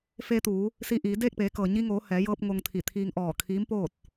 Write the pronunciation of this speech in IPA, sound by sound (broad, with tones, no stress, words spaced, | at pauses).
fe˧t̪uː˩˧ | siː˧ ʔiː˩˧ deː˥˨k̚peː˩˧kɤː˩ ɲi˧ŋoː˩˧ hɛː˩˧jɤː˧p̚ ŋo˧ŋt̪ʰi˧˩t̪ʰiː˧ŋ ʔɔː˧˩kʰiː˧˥m poː˥˨t̚